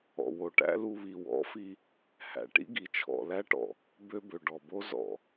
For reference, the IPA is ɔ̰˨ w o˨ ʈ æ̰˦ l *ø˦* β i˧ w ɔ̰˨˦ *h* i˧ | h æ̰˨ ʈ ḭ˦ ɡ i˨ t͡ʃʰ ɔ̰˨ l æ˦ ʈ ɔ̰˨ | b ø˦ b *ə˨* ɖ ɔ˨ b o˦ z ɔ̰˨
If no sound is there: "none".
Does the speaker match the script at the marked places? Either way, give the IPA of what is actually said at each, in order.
u˦, f, ø˨

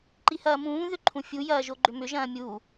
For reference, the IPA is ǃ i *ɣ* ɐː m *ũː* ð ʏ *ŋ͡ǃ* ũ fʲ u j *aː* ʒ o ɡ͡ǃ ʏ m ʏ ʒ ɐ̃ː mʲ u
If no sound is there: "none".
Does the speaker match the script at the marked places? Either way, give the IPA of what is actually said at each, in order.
h, ũː, ǃʰ, ɐː

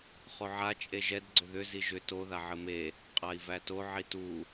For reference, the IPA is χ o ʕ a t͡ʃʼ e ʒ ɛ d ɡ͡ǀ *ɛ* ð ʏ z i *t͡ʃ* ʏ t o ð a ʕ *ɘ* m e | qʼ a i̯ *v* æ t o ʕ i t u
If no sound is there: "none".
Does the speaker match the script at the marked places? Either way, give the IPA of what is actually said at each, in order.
ʏ, ʒ, ɘ, v

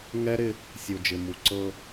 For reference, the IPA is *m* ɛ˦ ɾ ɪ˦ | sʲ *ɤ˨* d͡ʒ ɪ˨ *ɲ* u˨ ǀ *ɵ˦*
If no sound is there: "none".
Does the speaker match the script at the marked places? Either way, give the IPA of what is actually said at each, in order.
ŋ, o˨, m, ɤ˦

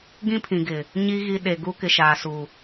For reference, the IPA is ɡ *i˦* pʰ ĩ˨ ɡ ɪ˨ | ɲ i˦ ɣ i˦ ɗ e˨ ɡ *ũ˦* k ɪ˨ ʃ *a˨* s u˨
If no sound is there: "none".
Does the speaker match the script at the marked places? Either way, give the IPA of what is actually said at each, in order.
ĩ˦, u˦, aː˨

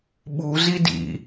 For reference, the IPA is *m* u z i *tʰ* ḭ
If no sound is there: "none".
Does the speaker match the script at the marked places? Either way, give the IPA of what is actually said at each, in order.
ɓ, d

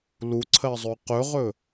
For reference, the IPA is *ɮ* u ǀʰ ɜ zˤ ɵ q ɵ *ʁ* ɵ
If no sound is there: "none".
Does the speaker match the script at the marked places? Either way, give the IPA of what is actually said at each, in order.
l, ʁ

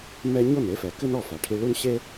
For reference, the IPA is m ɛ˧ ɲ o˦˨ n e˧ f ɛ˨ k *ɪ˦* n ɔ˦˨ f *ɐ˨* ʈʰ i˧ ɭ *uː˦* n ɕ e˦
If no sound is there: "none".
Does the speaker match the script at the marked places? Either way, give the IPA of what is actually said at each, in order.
ɨ˦, a˨, u˦

